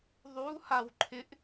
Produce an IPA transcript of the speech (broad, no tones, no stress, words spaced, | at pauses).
ðˤu hawǃʰɪʔ